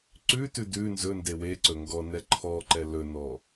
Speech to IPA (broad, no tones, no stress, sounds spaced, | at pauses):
ǀ ʉ t ʉ d ʉ n z ɵ n d e w e ǀ ɵ ŋ ɡ ɔ n ɛ ǃʰ ɔ ǃ ɛ l ɵ n ɔ